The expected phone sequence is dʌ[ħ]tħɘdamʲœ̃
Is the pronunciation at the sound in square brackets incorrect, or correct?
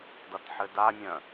incorrect